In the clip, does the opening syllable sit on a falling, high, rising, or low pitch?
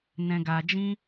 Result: low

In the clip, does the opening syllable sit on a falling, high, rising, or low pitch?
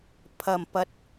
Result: low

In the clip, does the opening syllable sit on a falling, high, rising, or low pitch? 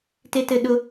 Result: high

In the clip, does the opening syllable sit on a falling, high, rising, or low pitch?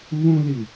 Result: high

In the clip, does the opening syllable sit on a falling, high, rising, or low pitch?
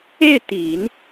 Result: falling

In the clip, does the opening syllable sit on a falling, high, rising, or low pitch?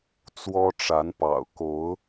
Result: high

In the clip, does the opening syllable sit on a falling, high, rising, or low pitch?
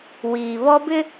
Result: low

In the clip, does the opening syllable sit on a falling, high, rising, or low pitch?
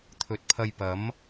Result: low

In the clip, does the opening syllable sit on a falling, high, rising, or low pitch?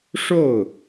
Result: falling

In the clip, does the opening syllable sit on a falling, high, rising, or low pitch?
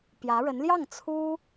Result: rising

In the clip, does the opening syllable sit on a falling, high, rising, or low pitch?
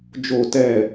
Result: falling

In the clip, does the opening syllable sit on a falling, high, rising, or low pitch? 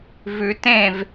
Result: low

